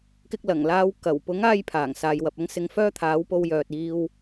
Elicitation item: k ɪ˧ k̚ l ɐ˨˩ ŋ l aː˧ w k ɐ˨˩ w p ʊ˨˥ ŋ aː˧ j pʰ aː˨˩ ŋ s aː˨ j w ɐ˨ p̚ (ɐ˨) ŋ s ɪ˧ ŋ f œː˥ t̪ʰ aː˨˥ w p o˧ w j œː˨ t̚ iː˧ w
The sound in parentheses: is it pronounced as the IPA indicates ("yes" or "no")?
no